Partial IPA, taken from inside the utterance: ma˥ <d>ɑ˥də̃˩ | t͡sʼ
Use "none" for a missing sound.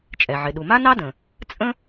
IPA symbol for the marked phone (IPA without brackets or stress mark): n